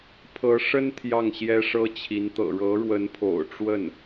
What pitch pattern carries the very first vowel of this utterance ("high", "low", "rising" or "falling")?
rising